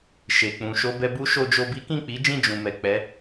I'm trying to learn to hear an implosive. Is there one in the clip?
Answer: no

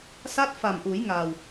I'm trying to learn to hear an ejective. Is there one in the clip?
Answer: no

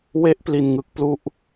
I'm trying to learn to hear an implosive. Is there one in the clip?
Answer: no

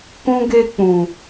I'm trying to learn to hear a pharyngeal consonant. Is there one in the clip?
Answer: no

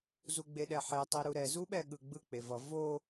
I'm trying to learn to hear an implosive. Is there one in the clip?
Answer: yes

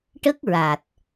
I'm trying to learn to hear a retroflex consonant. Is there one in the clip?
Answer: yes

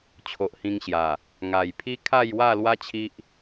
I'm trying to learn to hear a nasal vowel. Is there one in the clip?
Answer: yes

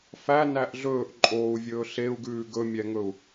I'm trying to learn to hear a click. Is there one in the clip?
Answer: yes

